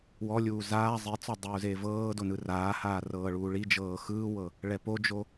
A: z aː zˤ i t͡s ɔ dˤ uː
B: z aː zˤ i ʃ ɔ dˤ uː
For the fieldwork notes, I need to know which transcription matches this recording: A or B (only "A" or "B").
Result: A